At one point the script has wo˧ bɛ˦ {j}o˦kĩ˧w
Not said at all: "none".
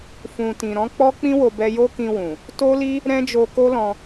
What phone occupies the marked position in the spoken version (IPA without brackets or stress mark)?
j